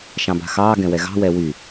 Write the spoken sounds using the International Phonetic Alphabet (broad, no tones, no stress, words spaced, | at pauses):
ʃɑ̃ba̤xɑː ɡɛ̃wɛɣɑ̤ wɛwy